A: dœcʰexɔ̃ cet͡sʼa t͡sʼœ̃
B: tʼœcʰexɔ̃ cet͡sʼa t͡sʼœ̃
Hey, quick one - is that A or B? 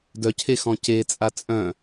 A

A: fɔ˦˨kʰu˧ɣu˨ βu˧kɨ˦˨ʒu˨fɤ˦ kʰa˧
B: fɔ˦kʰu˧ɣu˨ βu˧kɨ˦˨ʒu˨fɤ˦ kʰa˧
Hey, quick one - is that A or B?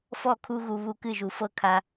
A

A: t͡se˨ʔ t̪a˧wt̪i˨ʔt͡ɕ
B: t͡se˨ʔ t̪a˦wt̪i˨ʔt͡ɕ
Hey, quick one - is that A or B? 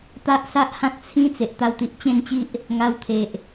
A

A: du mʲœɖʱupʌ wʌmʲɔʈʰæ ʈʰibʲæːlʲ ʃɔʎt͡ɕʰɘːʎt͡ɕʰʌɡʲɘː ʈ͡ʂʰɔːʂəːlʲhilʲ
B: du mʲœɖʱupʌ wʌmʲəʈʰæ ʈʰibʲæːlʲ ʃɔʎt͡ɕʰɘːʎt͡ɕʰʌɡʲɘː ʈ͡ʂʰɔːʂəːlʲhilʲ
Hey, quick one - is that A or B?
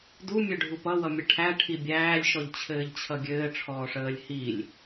B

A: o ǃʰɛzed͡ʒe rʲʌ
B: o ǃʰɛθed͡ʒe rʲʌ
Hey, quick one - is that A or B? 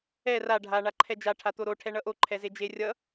A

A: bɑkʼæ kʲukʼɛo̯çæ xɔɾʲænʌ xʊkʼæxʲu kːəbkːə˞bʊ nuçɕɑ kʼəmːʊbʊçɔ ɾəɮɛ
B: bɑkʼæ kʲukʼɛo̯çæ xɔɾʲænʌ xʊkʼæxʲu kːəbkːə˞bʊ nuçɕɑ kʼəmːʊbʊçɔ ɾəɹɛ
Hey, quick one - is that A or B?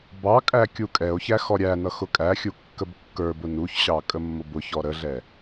A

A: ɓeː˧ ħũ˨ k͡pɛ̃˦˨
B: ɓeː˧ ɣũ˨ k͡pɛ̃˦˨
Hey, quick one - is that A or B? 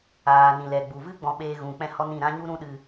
B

